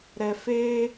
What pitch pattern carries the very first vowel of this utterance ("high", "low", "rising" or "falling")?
low